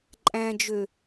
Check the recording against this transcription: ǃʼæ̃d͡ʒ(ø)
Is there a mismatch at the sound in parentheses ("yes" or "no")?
no